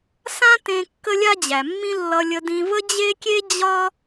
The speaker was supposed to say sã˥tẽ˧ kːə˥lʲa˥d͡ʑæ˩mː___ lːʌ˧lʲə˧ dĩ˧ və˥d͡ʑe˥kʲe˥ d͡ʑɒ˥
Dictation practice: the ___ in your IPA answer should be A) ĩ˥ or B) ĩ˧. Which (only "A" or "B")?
A